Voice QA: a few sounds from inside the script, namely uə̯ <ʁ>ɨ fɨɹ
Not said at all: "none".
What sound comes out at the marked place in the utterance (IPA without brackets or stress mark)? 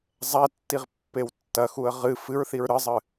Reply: ʁ